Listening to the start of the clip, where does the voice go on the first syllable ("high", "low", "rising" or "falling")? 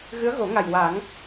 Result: rising